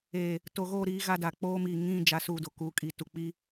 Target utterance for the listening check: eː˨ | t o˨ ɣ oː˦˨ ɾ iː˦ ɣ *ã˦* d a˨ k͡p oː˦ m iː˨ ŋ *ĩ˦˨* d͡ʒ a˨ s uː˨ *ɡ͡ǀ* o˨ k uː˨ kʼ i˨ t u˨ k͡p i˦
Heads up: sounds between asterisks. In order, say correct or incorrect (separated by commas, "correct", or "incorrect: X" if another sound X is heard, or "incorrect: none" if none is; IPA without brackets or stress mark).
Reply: incorrect: a˦, correct, incorrect: d